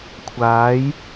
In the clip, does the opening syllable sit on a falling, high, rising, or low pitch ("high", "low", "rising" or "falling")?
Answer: rising